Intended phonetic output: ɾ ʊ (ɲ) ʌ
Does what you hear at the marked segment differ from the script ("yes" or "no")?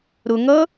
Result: yes